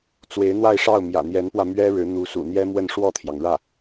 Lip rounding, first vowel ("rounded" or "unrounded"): unrounded